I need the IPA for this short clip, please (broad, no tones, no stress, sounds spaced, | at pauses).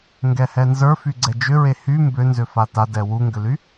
ŋ ɡ ɛ h ɛ n z ə˞ f y ɡ͡ǀ ɛ d͡ʒ ʏ ɹ e h y m b ʏ n z ʏ f a t a d ɛ w u ŋ ɡ ʏ l y